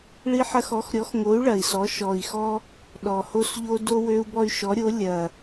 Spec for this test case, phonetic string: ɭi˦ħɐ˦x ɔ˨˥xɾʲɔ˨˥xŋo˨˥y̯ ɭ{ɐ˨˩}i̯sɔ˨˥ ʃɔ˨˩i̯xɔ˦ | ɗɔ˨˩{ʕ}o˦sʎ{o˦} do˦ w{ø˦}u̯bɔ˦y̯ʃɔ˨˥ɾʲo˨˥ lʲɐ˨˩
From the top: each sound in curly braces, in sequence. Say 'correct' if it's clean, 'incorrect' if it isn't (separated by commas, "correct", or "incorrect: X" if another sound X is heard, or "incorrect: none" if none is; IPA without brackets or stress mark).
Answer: correct, incorrect: h, correct, correct